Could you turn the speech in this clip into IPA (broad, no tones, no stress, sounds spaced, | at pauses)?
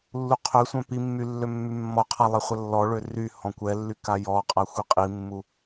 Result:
lː u qʰ ø sʷ œ̃ p i mː y lː ø mː y mː ɔ qʰ a lˠ e χʷ ə lː ɔ ɭ ø r y h ɔ̃ kʷ ɛ lː y k a j ɔ qʼ a xʷ i qʼ i mː u